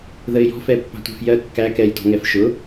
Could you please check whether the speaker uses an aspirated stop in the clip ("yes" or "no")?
no